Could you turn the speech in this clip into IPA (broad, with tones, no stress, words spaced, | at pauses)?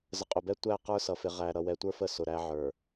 zə˨qʼʊ˨bɛ˦ tʷæ˦˨ qə˞˦sʌ˨ fɪ˨ʁæ˨ ɾʌ˨wɛ˨tʷə˞˦fə˦˨ sʊ˨ɾæ˦ʕə˞˨